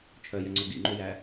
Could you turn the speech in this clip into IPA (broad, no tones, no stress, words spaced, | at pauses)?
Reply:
t͡ʃʰœjɛŋ͡ǀu ɡḭŋ͡ǃujæ